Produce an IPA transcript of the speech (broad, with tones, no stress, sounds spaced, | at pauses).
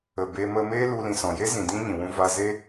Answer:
ə˨ b e˧ m ə˧ m e˦ l u˧ l ĩ˨ s ɔ̃˨ j e˦ z ĩ˨ d ĩ˦ ɲ ĩ˨ w ũ˧ v a˧ z e˦